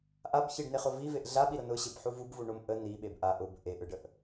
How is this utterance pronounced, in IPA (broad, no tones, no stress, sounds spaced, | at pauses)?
ʔ a b ç i ɖ n e χ ʊ v i v e ʔ ɮ a ɓ i ɾ ʊ n ʊ ɕ e b ħ u v u b v u ɳ ʊ m ʔ ə n i ɓ e b ʔ a ʔ ʊ b ʔ e ʔ ɯ ɖ ə ʔ